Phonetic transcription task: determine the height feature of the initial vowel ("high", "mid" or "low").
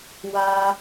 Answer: low